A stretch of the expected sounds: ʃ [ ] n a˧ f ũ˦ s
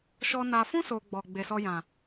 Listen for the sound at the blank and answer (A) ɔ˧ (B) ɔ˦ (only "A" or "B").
A